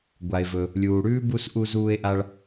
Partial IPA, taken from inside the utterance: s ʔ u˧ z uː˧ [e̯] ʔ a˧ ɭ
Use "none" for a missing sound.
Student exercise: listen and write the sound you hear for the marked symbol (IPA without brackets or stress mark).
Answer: e̯